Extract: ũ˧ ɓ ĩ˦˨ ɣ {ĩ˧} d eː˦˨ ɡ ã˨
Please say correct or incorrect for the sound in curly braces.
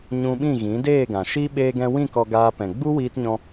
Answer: incorrect